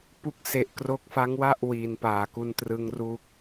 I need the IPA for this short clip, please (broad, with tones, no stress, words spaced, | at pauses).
pu˦˥k̚se˨˩ʔkro˦˥k̚ fa˦˥ŋwa˥˩ʔ wiː˧npaː˨˩ku˥˩n trɯ˦˥ŋru˥˩k̚